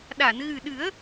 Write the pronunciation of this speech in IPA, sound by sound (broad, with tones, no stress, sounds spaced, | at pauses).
ɗ a˨˩˨ n ɣ ɨ˨˩ ɗ ɨ˨˩˦ ə̯